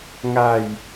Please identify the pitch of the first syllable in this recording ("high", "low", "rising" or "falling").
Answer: falling